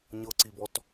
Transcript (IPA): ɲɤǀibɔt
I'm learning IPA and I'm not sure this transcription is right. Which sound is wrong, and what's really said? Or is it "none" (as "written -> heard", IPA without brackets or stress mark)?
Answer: none